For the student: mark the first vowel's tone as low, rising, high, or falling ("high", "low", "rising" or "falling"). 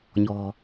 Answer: low